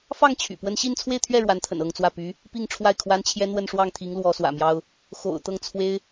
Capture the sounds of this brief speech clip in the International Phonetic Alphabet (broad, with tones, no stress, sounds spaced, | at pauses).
f ɑ˥˩ ŋ t͡ɕʰ y̰˨˩ p w ə˥ n ɕ i˥˧ n t͡sʰ w e˥˧ ɪ̯ t̪ʰ ɥ ɛ˥˩ ɻ w a˧˥ n t̪ʰ ə̰˨˩ n ɤ˥˧ ŋ t͡s w ä˥˩ p y˧˥ | p i˥˧ ŋ ʈ͡ʂʰ w a˥˩ ɪ̯ kʰ w a˥ n t͡ɕʰ j ɛ˥ n̪ w ə˥˧ n ʂ w ɑ˥˩ ŋ t̪ʰ i˧˥ ŋ l w ɔ˧˥ s w ä̰˨˩ m j ɑ˥ ʊ̯ | x o̰˨˩ ʊ̯ t̪ ɤ˥˩ ŋ t͡sʰ w e˥ ɪ̯